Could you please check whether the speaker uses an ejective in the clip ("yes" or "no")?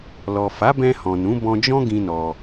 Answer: no